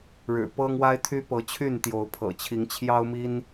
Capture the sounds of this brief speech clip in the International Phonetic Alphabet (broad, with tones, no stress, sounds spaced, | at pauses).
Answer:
ɻ ɻ̩˨˩ p ɤ˦ ŋ w a˦ ɪ̯ t̪ʰ y˦ p ɤ˨˦ t͡ɕʰ y˥˨ n t̪ j o˨˦ ʊ̯ pʰ ɤ̰˨˩ t͡ɕʰ i˨˦ ŋ t͡ɕʰ j ɑ˦ ʊ̯ m i˦ n